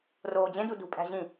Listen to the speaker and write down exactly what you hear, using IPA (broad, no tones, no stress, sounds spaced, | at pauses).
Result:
r oː d͡ʑ ẽ d u d ṳ pʼ æ̤ ʑ ĩ